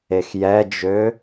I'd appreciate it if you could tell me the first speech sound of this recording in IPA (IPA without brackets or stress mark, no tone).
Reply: e